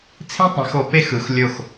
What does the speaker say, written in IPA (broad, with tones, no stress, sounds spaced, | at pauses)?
t͡sʰ ĩ˥ tˤ ĩ˩˧ x o˩˧ p e˥ x ɯ˩˧ x lʲ o˧˩ x